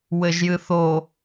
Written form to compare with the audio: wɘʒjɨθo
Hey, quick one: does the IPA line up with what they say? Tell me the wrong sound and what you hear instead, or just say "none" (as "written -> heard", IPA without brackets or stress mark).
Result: none